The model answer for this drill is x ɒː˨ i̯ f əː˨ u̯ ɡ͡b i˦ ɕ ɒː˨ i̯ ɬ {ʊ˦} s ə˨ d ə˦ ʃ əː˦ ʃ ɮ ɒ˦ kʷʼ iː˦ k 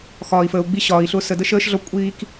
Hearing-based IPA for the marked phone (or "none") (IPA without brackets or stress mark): ʊ˦